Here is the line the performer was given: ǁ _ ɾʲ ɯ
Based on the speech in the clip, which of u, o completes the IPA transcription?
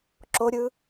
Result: o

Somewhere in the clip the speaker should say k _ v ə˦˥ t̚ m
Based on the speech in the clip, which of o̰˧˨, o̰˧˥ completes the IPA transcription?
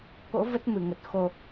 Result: o̰˧˥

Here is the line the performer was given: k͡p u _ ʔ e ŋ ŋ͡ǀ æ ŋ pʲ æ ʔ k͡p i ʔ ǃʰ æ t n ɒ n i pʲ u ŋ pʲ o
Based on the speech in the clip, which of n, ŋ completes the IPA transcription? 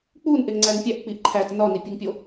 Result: n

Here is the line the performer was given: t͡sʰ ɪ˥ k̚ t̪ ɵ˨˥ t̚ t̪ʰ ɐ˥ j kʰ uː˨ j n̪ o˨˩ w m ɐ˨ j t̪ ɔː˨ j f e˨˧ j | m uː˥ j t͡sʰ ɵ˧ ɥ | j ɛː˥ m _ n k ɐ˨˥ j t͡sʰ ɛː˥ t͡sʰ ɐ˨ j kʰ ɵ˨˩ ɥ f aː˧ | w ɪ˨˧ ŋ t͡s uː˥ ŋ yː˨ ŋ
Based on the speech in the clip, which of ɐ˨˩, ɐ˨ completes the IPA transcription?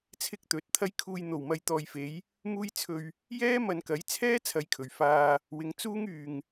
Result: ɐ˨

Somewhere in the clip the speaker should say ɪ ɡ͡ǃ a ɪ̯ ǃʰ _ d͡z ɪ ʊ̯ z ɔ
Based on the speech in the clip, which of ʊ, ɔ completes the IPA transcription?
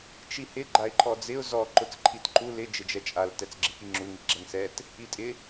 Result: ɔ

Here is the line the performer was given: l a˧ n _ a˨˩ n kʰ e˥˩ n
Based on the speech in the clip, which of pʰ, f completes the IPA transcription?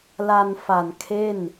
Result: f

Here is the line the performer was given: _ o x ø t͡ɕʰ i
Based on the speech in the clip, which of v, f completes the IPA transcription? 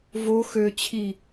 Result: v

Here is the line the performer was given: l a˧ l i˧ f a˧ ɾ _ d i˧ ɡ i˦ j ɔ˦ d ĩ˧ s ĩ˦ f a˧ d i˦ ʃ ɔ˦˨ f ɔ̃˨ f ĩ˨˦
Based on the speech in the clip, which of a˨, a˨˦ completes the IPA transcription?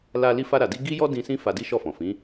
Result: a˨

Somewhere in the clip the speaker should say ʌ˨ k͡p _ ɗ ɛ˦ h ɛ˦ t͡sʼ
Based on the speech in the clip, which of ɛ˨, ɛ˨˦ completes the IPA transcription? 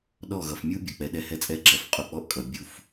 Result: ɛ˨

